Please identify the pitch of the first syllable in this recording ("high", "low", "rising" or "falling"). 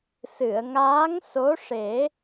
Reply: low